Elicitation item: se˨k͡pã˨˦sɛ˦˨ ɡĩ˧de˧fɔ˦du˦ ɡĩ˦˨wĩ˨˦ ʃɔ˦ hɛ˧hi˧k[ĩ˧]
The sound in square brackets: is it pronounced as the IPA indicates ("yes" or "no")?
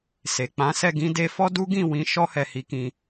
yes